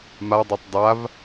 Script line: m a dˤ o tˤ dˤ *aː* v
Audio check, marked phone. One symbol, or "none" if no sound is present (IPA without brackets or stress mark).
a